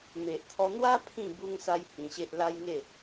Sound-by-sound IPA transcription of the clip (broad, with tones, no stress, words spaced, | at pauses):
me˨ʔt̪ʰɔ˧n̪wa˦ pʰĩ˥˧ bu˧ŋsa˧j hĩ˧ɕe˦ʔ la˦jŋe˥˧